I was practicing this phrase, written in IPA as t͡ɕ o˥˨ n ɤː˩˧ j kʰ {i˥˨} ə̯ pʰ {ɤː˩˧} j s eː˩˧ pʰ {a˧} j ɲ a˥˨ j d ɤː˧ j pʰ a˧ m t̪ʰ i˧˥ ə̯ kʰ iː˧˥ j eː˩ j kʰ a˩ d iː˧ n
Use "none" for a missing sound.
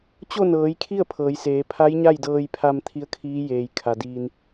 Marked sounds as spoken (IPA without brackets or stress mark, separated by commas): i˥˨, ɤː˩˧, a˧˥